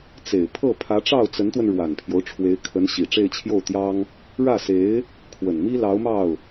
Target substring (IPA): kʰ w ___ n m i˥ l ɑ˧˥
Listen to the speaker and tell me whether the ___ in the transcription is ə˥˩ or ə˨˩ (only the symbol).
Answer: ə˨˩